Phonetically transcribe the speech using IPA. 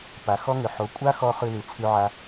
p a˨ x ɔ˦ ŋ ʏ˨ ħ o˨˦ kʷʼ a˦ x ɔ˧ χ ʉ˧ l ʉ˨ t͡sʰ ʉ˧ ʕ a˧

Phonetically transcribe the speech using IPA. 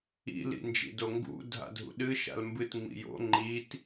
ḭ l ḭ n d͡ʒ ḭ d o ŋ ɡ ṵ dʱ a̰ dʱ ṵ ɗ ɨ ʃ a̰ l m b ɨ t ŋ͡m ḭ j o̰ ŋ͡ǃ i t

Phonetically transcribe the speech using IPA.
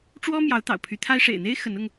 ʈ͡ʂ w ɔ˥ m j ɑ˧˥ ʊ̯ t̪ ɑ̰˨˩ ʊ̯ pʰ y˧˥ t̪ʰ a˥ ɪ̯ ʂ ḛ˨˩ ɪ̯ n̪ e˥ ɪ̯ x ə˧˥ n ʊ˧ ŋ

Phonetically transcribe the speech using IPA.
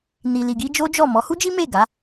n i˨ l i˨ ɡ i˧ d͡ʒ o˦ d͡ʒ ɔ˦˨ m ɔ˨˦ h u˦ d͡ʒ i˦ m e˦˨ ɡ a˨˦

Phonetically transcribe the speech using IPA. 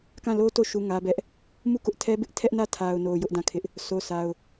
k ã˦˨ l o˦ t o˦˨ ʃ u˦ ŋ ä˦ b ɛ˦ ʔ | m u˦˨ k ʊ˦ ʔ tʰ ɛ˦ b ɪ˦ ʔ tʰ ɛ˦ ʔ n ä˦˨ tʰ a˨ ʊ̯ n o˨ j ʊ˦ ʔ d ã˦˨ kʰ ɪ˦ ʔ | s o˦ s a˦ ʊ̯

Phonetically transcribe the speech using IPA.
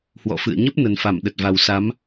h w ɔ̰˧˨ f ɨ̰˧˨ ə̯ ɲ ə˦˥ p̚ n ə˨˩ n f a˧˩ m ɗ ə˨˩ t̚ v a˨˩ w s a˨˦ m

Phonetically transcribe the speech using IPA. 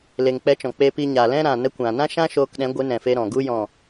l e˨ ŋ k͡p ɛ˧ t͡ʃ ɔ̃˨ k͡p e˧ p i˧ ɲ a˨ l ɛ̃˦ ɾ ã˨ n ə˧ kʷ ã˨ n ã˦ ʃ ã˦ ʃ oː˧ k ɗ ɛ̃˨˦ ɡʷ ɨ˨˦ n ɛ̃˨ f e˧ ɾ ɔ̃˨ ɡ u˦ j ɔ̃˦˨

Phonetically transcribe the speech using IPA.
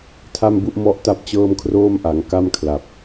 tʰ a˥˩ m b u˥˩ ʔ m ɔ˥˩ ʔ t a˥˩ p̚ t͡ɕ ɤː˥˩ m kʰ r oː˥˩ m ʔ a˩˦ ŋ k a˥˩ m kʰ l a˨˩ p̚

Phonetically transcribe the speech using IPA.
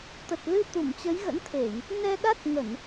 t̪ ə˨˩ t̚ l ɨ˧ t̪ u˧˩ m t͡ɕ ə˨˦ j ɣ ə̰˧˥ n t̪ʰ e˧˩˨ j | n ɛ˧ ɗ a˦˥ t̚ ŋ ə˧˩˨ n

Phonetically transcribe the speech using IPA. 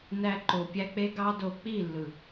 n æ˧ ǃ o˨ pʲ æ˧ k͡p e˦ ɡ ɑ˦ d o˧ k͡p i˦˨ lː ɯ˨

